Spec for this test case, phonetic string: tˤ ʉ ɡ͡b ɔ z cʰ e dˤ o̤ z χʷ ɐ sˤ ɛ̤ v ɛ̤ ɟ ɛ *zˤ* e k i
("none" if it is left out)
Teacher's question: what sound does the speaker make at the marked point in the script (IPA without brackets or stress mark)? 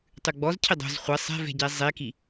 zˤ